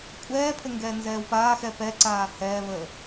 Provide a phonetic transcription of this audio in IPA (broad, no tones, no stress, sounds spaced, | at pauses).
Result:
kʷʼ ɛː pʰ ə ŋ ɡ ɛː n z ɛː w p aː x ɛ p ɛ ǀ aː h ɛː β əː